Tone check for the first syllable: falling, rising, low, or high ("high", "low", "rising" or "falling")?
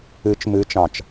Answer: rising